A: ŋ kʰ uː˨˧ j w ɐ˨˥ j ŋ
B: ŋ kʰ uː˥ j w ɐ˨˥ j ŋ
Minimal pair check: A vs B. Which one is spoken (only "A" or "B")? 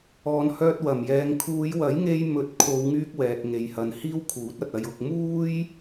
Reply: A